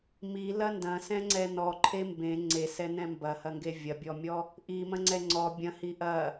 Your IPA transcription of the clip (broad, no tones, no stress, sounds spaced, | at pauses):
m i l ɐ n d ɐ̃ s ɛ̃ ŋ͡ǀ ɛ n ɔ ǃʰ e m b ẽ ŋ͡ǀ e s ɛ n ɛ̃ m b ɐ h ɐ ŋ ɡ e vʲ ɐ bʲ ɔ mʲ ɔ | ʔ i m ɐ̃ ŋ͡ǀ ɛ ŋ͡ǀ ɔ bʲ ɐ̃ h i ʔ ɐ